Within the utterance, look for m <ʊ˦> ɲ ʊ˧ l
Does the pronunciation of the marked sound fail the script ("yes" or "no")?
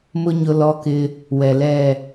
no